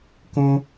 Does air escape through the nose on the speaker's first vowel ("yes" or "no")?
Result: yes